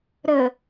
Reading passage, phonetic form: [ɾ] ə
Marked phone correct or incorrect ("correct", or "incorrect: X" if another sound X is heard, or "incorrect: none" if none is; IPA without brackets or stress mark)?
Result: correct